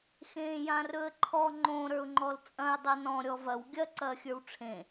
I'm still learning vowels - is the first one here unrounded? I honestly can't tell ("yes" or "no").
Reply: yes